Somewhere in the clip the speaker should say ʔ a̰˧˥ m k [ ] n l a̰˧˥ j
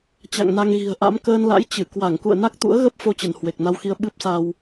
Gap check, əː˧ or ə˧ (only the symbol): əː˧